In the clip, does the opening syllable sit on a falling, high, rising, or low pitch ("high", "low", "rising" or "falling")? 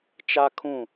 high